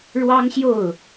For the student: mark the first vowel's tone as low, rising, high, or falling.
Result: high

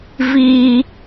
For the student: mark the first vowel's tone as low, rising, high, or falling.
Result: high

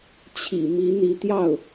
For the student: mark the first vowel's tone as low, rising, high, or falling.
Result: low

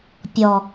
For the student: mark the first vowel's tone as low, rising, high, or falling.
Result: low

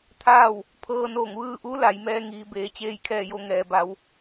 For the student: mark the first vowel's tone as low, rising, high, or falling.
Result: falling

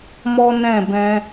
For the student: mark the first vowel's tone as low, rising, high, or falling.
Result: high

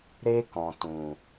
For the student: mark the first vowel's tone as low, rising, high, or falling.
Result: high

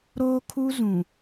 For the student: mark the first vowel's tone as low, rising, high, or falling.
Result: high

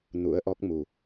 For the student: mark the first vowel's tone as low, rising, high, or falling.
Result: rising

